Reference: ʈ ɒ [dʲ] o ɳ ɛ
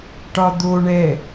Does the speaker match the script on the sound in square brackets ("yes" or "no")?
no